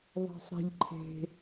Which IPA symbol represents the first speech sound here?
ðˤ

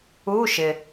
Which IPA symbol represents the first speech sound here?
u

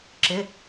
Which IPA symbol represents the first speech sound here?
ǁ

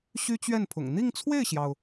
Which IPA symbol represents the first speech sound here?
ɕ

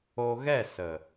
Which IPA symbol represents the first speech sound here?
o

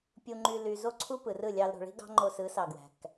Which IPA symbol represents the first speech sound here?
pʲ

